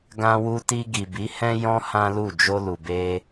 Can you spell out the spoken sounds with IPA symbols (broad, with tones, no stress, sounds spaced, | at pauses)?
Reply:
ɡ ã˧ w u˧ t i˧ ɡ i˨ b i˨˦ h ɛ̃˦ j ɔ̃˦ h ã˦ l u˦˨ d͡ʒ o˧ l u˨ b e˧